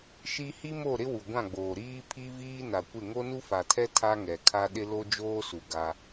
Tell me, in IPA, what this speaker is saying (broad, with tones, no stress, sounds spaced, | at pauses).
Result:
ʃ i˦ h i˦ m o˦˨ ɾ ɪ˦ w u˨ ɡʷ ã˦˨ ɡ͡b oː˨ ɾ iː˦ pʰ i˦ v iː˦ n a˨ kʷ ɪ˦˨ ŋ o˦ n u˦ f a˨ tʰ ɛ˦ tʰ a˦ ŋ ɛ˨ kʰ a˦ ɗ ɪ˦ l o˦ d͡ʒ oː˦ s u˨ ɡ a˦